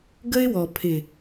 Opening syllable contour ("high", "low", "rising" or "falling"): high